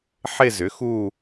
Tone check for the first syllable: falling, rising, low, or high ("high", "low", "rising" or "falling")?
falling